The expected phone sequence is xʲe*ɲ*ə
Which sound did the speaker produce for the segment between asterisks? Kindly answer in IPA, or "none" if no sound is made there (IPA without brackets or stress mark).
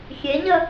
ɲ